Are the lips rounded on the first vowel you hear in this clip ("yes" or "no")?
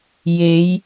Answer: no